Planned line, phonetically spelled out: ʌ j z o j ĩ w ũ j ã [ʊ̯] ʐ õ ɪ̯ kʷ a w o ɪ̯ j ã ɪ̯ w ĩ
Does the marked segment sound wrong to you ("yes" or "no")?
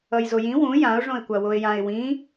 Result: no